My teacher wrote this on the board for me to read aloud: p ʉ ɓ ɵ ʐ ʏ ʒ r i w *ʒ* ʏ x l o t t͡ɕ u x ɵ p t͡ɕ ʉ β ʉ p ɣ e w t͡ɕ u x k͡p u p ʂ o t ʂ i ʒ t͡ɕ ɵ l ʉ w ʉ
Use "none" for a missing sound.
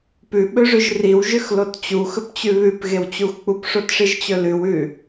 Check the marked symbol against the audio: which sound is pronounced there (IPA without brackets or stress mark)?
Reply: ʒ